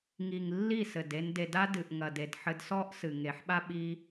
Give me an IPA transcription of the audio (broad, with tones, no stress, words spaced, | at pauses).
ŋi˨ŋ lːi˦˨sɘ˨de˧n de˨da˧ dɨ˨ʔ ŋɐ˨de˨d ħɘ˧dsɔ˦ʔ sɨ˨ŋe˨ħɓa˦ ɓi˦